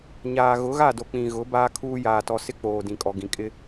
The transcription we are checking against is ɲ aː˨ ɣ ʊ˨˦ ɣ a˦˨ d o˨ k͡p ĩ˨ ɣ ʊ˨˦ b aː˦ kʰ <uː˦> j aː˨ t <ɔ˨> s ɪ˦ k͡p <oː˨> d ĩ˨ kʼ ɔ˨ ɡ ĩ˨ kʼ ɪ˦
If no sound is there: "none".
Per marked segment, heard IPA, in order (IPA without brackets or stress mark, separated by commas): uː˦, ɔ˨, oː˨